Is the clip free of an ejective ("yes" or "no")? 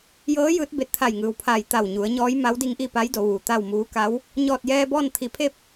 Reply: yes